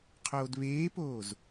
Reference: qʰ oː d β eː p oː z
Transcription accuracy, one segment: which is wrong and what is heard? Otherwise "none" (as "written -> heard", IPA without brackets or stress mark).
none